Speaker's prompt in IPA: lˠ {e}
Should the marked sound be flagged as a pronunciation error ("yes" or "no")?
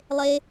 no